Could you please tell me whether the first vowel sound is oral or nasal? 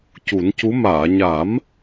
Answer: oral